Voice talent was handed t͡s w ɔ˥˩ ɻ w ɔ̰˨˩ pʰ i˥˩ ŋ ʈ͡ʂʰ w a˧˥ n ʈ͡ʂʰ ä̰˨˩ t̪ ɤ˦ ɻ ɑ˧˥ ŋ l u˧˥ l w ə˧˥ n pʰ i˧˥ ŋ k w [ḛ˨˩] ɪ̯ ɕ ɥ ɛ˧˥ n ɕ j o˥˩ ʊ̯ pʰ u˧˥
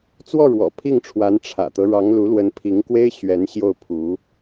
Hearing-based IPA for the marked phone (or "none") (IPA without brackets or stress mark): e˥